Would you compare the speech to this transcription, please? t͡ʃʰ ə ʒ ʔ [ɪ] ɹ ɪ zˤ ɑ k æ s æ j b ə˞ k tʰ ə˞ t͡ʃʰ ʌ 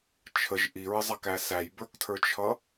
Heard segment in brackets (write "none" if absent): i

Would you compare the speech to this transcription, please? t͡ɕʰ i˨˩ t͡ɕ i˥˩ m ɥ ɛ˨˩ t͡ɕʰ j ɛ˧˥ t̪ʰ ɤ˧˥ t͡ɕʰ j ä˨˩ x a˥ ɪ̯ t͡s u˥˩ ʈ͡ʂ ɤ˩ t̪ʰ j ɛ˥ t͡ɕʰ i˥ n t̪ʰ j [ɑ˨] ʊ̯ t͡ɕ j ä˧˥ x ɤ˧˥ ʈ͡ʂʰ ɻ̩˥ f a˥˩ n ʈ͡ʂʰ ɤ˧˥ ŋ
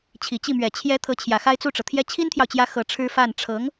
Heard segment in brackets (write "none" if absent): ɑ˨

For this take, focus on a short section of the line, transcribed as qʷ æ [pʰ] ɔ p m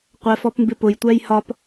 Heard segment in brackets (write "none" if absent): f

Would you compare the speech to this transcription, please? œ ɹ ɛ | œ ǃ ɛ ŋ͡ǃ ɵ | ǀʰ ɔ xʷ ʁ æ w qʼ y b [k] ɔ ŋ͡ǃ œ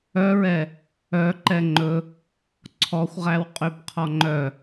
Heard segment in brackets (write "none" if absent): qʰ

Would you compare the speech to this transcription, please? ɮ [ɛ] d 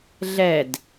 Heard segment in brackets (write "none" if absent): ɛ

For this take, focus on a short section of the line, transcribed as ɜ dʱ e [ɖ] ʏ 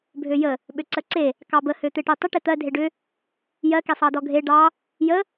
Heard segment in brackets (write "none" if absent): ɖ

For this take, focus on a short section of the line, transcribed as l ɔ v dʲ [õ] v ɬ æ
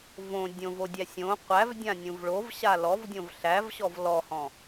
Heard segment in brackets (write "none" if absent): õ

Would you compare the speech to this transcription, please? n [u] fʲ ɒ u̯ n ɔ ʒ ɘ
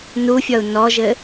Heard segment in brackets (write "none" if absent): u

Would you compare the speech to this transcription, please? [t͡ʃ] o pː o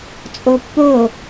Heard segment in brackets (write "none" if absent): t͡sʼ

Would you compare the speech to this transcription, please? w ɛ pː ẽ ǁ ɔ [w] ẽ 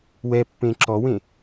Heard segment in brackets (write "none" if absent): w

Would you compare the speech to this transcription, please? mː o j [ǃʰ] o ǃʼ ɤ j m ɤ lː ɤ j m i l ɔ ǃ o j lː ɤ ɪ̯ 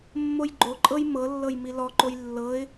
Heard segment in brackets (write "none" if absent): ɡ͡ǃ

